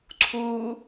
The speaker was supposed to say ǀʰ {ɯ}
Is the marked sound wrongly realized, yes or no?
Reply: yes